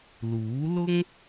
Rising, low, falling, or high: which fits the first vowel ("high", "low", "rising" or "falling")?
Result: rising